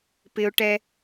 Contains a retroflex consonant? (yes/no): yes